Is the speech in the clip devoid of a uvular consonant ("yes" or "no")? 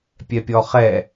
no